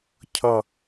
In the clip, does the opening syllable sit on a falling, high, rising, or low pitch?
low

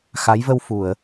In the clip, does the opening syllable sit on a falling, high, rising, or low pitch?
rising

